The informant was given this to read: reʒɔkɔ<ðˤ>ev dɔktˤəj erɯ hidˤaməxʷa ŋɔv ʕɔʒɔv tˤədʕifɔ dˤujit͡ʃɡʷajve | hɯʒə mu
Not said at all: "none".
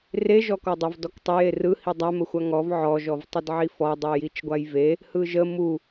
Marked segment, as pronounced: dˤ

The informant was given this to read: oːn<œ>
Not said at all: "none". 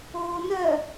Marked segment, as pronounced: œ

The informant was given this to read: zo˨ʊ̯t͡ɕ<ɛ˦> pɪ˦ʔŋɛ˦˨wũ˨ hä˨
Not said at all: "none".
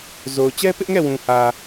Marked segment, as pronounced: ɛ˦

